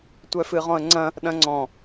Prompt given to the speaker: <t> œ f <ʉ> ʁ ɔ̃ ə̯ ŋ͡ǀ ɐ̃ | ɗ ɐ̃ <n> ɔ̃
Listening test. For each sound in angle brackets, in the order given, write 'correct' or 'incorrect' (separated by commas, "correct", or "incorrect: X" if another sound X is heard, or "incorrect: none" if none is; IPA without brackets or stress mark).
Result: incorrect: tʷ, incorrect: ɨ, incorrect: ŋ͡ǀ